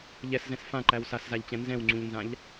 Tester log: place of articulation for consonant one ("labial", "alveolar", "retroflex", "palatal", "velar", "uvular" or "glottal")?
palatal